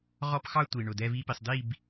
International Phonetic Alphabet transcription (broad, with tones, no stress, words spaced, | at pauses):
ʁɔ˦pxɑ˦ tʷi˨ɳʊ˨ dɛ˦vi˦pi˨sˤ di˦˨b